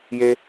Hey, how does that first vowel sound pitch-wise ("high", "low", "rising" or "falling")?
high